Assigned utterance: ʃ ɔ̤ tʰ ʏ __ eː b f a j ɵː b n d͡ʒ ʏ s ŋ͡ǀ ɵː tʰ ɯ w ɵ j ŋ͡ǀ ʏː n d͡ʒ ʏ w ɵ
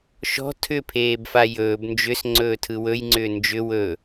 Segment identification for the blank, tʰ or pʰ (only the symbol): pʰ